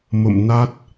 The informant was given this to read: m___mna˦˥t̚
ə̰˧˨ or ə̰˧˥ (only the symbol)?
ə̰˧˨